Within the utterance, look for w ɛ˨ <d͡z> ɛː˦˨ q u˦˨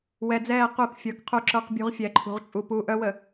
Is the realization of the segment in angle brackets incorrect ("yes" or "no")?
no